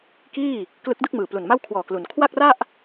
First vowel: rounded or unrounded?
unrounded